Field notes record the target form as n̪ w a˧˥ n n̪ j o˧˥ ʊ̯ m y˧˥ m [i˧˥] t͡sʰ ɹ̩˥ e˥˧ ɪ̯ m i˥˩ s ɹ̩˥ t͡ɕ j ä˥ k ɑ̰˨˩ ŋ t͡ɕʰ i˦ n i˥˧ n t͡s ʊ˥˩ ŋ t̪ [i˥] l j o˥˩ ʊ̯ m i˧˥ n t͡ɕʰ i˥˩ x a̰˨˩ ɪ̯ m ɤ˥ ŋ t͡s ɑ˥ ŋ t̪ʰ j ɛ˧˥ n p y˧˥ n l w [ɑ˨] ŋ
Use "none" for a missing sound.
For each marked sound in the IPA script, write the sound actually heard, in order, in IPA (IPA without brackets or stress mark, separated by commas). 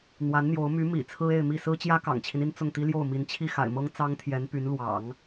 ḭ˨˩, i˥, ɑ̰˨˩˦